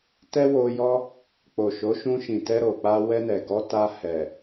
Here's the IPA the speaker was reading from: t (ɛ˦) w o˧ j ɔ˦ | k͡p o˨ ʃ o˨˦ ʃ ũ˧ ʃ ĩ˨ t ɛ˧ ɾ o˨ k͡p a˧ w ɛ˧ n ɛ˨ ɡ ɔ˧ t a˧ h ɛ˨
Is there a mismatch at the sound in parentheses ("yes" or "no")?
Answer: no